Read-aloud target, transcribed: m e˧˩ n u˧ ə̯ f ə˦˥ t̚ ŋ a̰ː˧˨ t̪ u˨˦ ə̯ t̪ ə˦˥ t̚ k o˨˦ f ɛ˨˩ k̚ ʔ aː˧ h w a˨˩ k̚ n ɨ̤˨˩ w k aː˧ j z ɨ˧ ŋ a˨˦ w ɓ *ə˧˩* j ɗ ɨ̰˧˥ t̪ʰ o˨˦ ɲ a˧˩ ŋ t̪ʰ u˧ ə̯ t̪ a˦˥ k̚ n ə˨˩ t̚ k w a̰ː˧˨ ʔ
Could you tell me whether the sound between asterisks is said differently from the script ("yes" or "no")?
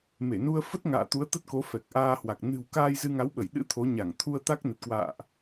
no